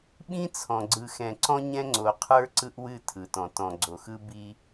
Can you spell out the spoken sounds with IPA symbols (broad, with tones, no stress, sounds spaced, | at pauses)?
ɓ ĩ˦ t͡sʰ ɔ̃˨ ɡ͡ǀ ɯ˨ x ɛ̃˨ ǀ ɔ̃˦ ɲ ɛ̃˦ ŋ͡ǀ o˨ qʰ ə˞˦ ǀ ɯ˦ ʔ w ɨ˦˨ tʰ ɯ˨ t ɔ̃˨ t ɔ̃˨ ɡ͡ǀ o˨ x ɯ˦ b i˦